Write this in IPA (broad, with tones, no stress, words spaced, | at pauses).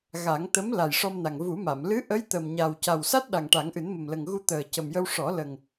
ɣa˨˩˦ŋ t̪ə˧˥m la˨˩jʂɔ˧mna˨˩ŋ vu˨˩˦ma˨˩˨m lɨ˧˥ʔə˧˥j t̪ə˨˩mɲa˨˩w ca˨˩wsa˦˥t̚ ɗa˨˩ŋʈa˨˩˦ŋʔɨ˨˩˦n mə˨˩mlə˨˩ŋ ɣu˧t̪əː˨˩ cə˨˩mjə˧w ʂɔ˨˩˦ lə˨˩ŋ